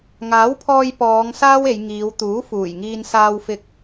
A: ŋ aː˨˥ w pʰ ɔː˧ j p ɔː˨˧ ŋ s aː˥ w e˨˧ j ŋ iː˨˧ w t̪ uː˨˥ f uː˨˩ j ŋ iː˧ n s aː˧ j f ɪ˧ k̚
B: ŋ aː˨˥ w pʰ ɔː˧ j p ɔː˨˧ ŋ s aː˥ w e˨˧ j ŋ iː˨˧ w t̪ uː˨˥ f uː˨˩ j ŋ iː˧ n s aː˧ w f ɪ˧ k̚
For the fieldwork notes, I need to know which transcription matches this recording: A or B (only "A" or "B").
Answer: B